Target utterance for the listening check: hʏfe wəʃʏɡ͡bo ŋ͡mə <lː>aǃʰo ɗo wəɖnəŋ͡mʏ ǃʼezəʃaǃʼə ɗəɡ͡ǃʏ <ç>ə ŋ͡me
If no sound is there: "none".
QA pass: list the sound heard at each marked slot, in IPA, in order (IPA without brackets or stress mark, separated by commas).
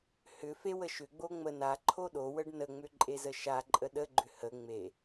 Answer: n, h